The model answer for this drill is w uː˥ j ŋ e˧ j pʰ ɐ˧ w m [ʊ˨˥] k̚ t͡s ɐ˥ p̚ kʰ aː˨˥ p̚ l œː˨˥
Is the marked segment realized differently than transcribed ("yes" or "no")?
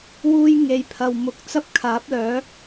yes